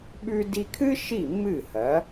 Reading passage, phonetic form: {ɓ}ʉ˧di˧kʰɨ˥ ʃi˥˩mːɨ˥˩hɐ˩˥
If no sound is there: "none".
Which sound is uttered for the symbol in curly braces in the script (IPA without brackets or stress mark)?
ɓ